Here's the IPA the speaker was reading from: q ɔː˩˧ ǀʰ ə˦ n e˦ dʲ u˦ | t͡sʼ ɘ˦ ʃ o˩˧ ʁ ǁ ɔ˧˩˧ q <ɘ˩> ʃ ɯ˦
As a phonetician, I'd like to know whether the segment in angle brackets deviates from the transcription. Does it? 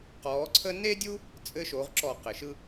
no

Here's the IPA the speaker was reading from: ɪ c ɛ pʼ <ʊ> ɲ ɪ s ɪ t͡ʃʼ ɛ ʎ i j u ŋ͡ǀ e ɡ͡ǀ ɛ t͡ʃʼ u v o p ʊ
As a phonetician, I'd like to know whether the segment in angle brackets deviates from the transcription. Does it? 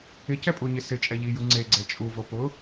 yes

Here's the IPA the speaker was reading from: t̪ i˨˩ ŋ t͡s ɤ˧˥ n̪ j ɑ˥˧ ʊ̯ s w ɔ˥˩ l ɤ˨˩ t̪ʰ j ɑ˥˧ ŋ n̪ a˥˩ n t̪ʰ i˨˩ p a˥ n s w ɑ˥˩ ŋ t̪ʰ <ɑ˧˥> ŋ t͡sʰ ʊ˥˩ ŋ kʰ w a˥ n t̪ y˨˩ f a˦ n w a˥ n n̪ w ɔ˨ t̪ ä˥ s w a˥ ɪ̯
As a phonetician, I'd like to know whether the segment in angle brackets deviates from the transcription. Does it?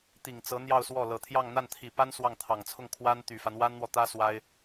yes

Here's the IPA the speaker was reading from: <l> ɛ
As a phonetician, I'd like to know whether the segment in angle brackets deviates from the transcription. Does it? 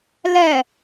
no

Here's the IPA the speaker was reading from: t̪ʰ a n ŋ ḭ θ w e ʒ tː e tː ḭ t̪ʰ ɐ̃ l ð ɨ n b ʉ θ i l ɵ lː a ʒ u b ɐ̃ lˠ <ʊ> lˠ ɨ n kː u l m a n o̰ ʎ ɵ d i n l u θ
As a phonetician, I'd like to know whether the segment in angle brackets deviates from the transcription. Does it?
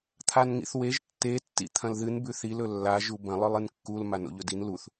yes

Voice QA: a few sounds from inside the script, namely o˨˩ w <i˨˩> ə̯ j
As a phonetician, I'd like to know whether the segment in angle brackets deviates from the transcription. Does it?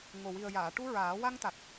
no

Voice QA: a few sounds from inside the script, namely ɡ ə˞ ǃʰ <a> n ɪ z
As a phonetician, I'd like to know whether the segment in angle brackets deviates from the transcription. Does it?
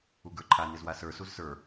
no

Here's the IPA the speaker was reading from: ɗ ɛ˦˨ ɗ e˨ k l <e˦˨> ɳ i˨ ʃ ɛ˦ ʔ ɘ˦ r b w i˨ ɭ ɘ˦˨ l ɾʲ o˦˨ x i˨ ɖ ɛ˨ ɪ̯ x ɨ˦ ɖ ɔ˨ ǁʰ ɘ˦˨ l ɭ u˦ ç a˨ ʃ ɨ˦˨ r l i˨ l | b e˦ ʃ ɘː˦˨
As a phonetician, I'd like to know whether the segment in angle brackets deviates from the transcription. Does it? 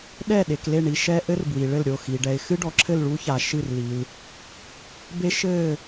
no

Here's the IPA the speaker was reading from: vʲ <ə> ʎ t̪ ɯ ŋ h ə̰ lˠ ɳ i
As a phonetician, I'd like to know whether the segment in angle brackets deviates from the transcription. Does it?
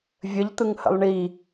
no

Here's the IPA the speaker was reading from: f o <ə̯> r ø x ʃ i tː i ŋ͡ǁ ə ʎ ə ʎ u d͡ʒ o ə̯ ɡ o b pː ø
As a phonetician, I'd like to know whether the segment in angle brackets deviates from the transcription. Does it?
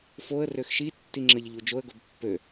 no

